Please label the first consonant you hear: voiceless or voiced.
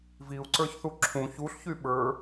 voiced